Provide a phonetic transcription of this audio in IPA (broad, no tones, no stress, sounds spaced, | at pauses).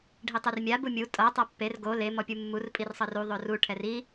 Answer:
ɖʱ i tˤ ɯ r mʲ a b u mʲ u tʼ ɤ tˤ a pː e r ɡ o l e m ɔ pʲ u mː u r pʼ i r sˤ ɤ r u ðˤ o r u ʈʰ ɛ r i